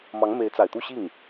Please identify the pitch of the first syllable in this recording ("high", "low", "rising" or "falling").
rising